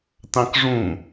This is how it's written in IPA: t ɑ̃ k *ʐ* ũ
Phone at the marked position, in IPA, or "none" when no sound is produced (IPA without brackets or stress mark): ʐ